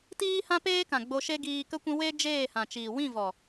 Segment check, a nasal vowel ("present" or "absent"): present